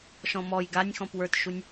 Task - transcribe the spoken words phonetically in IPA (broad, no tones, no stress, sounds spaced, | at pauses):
ʃ ɔ̃ m ɔ j ɡ a nʲ x ɔ̃ p w ə˞ t ʃ u nʲ